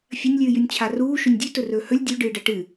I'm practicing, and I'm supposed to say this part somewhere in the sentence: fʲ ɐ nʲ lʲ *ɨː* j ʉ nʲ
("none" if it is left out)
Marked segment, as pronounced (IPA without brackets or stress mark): ɨː